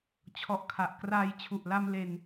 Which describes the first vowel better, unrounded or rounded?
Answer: rounded